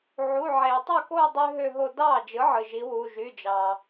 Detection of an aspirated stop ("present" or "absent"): absent